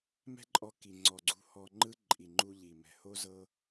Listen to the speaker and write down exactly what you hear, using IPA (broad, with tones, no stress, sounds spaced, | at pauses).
m ɛ̤˦ ǃʼ ɔ˧ k i˨ ŋ͡ǀ ɔ˨ ɡ͡ǀ ṳ˧ h ɔ˧ ŋ͡ǃ ɯ˦ ǃʼ i˨ ŋ͡ǃ u˧ ʎ i˨ m ɛ̤˨ h o˦ z ɤ˦